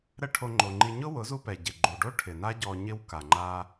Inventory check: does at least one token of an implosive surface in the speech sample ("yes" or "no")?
no